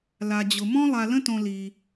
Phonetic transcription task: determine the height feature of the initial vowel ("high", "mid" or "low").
low